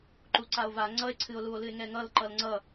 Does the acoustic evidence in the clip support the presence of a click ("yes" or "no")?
yes